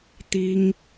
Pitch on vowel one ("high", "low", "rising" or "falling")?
high